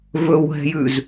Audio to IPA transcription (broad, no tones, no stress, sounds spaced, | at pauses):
v ɵ w ɦ ɛ̤ j ʉ z